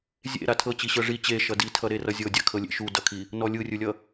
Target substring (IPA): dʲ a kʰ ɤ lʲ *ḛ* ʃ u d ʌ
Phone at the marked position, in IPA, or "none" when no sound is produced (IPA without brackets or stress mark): ḛ